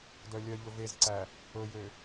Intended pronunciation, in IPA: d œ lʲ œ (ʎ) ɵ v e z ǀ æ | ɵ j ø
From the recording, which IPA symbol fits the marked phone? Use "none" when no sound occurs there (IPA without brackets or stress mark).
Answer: ʎ